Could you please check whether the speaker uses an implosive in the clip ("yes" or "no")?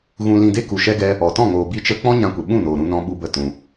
yes